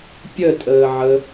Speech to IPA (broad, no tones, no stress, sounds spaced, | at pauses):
pʲ ə tʼ əː ʕ ə